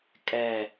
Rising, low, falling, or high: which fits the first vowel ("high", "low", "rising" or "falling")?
falling